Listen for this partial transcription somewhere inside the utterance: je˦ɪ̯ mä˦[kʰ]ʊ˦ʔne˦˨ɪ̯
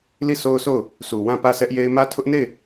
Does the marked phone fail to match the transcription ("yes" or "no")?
yes